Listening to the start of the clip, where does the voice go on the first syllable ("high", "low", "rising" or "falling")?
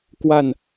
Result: falling